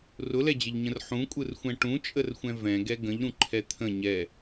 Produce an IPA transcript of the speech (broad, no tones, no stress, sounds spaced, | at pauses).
r ʊ l ɛ d͡ʑ ə ʎ ɲ ə̃ r ħ ũ kʷʼ ɯ r xʷ ɛ̃ ʈ ũ t͡ʃʼ ə r xʷ ɛ̃ v ɛ̃ ɡ ɛ ɡ ə̃ ʎ ɾ ũ ǃʰ ɛ t̪ʰ ə̃ ɲ ɛ